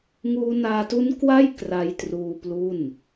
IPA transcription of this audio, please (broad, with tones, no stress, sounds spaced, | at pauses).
ŋ uː˧ n aː˧ t u˦˥ n k w a˥˩ j k r a˧ j t r uː˧ p l u˥˩ n